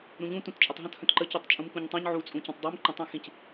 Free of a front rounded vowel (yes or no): no